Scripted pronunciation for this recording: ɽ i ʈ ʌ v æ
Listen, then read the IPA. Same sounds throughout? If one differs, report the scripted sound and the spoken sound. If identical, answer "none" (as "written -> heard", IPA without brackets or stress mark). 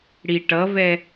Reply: æ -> ɛ